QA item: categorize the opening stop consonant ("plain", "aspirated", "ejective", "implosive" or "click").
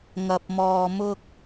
plain